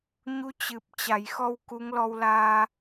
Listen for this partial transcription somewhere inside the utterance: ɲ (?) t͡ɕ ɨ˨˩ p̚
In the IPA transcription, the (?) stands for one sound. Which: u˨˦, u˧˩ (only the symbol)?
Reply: u˨˦